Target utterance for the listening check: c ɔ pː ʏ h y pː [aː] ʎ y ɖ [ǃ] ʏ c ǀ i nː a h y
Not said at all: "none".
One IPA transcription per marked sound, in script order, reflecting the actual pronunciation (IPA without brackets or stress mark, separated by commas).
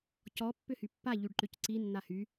a, ǃ